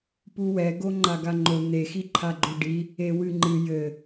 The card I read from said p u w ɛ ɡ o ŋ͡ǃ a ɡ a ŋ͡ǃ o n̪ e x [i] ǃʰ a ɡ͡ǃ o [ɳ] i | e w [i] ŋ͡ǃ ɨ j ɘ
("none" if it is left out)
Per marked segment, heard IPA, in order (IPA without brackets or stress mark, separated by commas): i, ɖ, ɨ